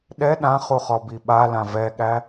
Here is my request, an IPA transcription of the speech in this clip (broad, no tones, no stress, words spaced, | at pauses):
ɗɛ ɗãχuχɔbi ɓalã vɛɠæ